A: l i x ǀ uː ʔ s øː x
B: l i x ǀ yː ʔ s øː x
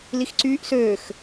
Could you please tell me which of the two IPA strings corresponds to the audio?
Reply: B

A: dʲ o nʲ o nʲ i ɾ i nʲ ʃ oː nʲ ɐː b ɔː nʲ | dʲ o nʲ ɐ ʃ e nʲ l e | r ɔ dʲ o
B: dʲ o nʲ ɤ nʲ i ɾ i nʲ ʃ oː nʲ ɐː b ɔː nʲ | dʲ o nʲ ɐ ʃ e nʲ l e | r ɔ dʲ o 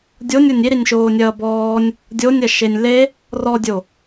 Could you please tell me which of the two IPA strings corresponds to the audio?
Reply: A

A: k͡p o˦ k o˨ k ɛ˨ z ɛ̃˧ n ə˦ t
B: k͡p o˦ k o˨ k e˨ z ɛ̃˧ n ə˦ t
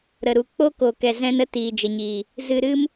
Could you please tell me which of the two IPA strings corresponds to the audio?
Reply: A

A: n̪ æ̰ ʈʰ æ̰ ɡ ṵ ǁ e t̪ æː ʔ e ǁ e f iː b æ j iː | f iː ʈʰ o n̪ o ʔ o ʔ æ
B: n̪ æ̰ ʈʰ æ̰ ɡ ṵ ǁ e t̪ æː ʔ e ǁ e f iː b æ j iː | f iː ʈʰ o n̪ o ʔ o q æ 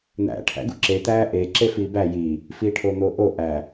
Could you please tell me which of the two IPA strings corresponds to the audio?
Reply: A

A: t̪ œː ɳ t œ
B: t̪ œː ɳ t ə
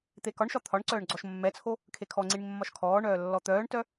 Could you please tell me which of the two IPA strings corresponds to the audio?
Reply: A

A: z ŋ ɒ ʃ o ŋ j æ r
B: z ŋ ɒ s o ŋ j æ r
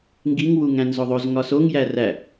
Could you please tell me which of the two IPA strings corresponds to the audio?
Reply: B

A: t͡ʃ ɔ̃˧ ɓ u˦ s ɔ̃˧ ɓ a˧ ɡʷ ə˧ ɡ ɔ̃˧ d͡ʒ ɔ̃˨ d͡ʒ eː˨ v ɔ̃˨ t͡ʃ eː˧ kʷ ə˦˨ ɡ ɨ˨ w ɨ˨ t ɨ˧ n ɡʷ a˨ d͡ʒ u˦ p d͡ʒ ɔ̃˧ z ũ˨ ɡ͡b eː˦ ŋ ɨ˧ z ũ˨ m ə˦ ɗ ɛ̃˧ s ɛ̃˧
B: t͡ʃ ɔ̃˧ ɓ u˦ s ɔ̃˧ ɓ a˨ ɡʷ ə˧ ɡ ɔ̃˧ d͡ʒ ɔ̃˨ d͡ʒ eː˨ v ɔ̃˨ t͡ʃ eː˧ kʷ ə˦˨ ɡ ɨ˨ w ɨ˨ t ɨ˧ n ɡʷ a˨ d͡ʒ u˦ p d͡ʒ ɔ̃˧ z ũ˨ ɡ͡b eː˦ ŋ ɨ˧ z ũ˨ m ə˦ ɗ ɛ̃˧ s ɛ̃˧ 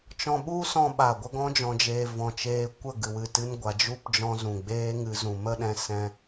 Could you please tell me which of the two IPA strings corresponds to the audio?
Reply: B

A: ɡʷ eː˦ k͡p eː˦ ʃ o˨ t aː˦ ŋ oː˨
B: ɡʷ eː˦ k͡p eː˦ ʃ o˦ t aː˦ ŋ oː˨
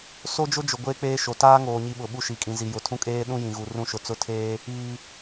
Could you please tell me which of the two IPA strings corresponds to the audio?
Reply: A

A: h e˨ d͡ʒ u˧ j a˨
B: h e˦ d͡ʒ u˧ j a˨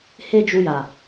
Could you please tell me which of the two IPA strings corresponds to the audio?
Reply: B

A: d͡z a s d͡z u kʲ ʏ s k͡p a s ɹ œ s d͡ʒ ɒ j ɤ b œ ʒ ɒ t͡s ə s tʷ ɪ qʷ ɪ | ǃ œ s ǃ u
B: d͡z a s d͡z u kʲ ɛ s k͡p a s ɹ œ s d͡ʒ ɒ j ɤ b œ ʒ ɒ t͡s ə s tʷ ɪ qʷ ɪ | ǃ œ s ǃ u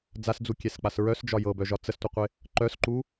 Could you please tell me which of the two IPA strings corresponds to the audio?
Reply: B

